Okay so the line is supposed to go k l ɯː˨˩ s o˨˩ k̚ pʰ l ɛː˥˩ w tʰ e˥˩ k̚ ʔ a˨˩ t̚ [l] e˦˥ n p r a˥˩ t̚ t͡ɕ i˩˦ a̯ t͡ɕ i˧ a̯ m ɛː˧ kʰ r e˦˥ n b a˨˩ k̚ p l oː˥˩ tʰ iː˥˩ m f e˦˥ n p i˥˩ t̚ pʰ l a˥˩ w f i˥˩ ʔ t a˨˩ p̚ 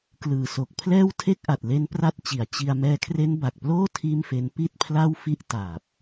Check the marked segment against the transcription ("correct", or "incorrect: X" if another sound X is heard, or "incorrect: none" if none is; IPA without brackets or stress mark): correct